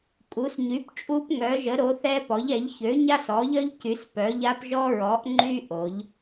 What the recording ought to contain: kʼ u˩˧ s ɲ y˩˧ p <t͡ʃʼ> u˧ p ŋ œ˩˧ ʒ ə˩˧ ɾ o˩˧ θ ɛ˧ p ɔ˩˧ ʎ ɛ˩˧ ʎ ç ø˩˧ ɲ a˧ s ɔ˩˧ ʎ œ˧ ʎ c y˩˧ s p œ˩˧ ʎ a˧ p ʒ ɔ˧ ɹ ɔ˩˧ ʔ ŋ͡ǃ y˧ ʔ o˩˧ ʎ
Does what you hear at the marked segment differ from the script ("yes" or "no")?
no